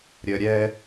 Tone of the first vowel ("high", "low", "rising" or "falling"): low